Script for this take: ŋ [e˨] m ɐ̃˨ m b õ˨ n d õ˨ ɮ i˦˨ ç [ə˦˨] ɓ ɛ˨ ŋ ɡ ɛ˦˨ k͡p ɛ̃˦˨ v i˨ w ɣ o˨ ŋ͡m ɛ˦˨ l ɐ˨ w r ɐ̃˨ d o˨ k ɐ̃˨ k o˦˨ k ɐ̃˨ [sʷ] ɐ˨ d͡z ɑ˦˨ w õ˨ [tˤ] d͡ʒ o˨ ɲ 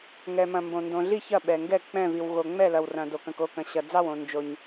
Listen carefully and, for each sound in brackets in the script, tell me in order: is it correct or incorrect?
incorrect: ɛ˨, incorrect: ɐ˦˨, incorrect: ɕ, incorrect: n

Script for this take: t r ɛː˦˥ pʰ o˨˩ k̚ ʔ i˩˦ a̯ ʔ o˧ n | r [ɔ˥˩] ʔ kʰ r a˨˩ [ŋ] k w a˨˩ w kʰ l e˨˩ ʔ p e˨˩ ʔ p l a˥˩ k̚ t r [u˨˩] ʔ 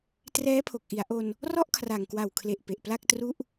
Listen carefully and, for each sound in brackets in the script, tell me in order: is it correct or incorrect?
correct, correct, incorrect: u˥˩

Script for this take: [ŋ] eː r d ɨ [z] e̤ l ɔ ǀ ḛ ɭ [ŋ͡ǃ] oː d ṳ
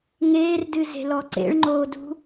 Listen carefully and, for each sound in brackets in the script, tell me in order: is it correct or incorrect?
correct, correct, correct

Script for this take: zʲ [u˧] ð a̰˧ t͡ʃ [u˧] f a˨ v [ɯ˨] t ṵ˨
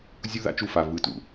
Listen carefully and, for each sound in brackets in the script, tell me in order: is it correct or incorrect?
correct, correct, correct

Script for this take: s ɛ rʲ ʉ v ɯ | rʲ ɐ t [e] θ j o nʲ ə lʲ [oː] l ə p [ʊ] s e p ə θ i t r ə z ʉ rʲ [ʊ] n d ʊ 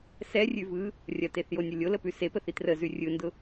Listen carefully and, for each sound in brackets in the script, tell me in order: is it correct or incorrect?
correct, incorrect: o, incorrect: ʉ, incorrect: ɯ

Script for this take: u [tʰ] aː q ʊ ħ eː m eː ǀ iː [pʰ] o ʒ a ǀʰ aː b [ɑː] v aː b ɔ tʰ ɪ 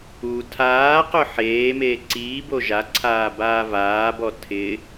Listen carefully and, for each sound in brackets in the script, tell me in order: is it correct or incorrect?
correct, incorrect: b, incorrect: aː

